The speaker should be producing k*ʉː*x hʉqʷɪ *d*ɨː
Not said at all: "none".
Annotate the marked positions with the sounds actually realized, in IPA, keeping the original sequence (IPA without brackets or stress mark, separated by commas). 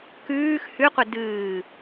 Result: ʉː, d